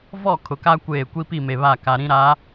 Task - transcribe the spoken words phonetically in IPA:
v ɔ˦˨ kʰ ʊ˨ k a˦ kʷ eː˦˨ kʷ i˦ p i˦˨ m e˨ β a˦˨ k a˨ ɾ ĩ˦ ɾ a˨˦

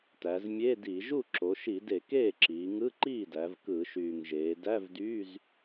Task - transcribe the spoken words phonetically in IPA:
t æ˩˧ z mʲ e˧˥˧ d i˧˩˧ ʒ u˥˩ ǁ o˩˧ ʃ i˧˩˧ d e˧˩˧ k eː˥˩ ǁ iː˩˧ ŋ ɯ˧˥˧ ǃ iː˥˩ d æ˩˧ v k ɯ˧˩˧ ʃ yː˨˩ ŋ ʒ eː˩˧ d æ˧˥˧ v d yː˧˥˧ z

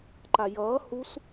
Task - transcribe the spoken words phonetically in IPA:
ǃ a j ʌː h u s

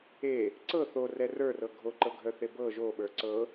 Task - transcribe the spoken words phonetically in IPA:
e | ǀ ɤ θ o r ɛ r ə˞ r ɤ ɡʱ o ǃ ɤ ɡʱ œ θ e b ɤ ʒ o ɓ ə˞ ǀ ɤ

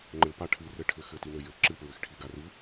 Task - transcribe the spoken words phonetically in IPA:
ŋ͡ǃ ɘ p a ʈʰ ɨ r ɘ ʈʰ ɘ x ɘ t i n ɘ j ɘ ǁ ɨ p ɹ ɘ x ʈʰ i ɡ a r ɨ

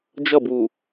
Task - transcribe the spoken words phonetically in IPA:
d͡ʒ ʌ˦˨ b w u˨

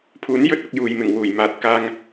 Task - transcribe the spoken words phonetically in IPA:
pʰ uː˨˥ n j ɵ˥ t̚ ɐ˧ k̚ j uː˨ j m ɪ˨˩ ŋ w uː˨˩ j m aː˨ t̚ k aː˧ ŋ

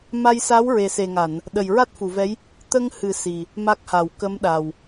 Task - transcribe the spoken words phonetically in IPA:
m a˧ j s a˧˥ w ɹ e˨˩ s e˨˩ ŋ a˨˩˨ n | ɗ ə˨˩ j ɹ a˦˥ t̚ f u˨˩˨ v ɛ˧˥ j | t̪ ə˧ ŋ h ɨ˨˩˦ s i˨˩ | m a˦˥ k̚ h a˨˩˨ w k ə˧˥ m ɗ a˨˩ w

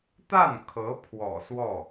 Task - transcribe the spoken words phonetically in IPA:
t̪ a˥˩ n kʰ ɤ˧˥ pʰ w ɔ̰˨˩ s w ɔ˥˩

